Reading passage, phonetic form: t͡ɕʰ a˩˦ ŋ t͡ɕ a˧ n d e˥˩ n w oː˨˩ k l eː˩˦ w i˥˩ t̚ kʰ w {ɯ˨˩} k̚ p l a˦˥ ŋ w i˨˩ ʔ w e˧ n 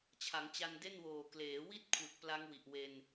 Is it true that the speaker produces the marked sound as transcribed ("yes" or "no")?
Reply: yes